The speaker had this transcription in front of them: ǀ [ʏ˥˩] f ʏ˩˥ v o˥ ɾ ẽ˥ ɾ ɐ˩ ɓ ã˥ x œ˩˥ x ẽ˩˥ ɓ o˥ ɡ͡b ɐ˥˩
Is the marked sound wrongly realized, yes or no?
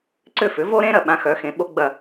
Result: no